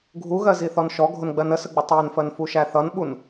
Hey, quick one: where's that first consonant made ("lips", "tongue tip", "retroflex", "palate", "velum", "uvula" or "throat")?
velum